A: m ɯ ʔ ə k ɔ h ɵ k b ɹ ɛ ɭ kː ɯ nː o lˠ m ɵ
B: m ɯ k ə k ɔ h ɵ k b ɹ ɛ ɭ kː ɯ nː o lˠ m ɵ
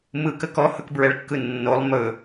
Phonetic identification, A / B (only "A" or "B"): B